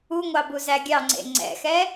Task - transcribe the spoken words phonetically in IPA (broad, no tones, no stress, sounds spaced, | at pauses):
u ŋʷ ɑ b u z æ ɡʲ ɑ ŋ͡ǀ ḛ ŋ͡ǀ ɛ̰ x ɛ